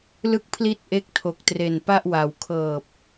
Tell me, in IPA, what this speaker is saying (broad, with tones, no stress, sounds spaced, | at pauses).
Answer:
l ɯ˥˩ k̚ pʰ l i˥˩ t̚ ʔ e˥˩ k̚ tʰ o˨˩ k̚ t r e˨˩ n p a˥˩ ʔ w a˩˦ w kʰ ɤː˨˩ p̚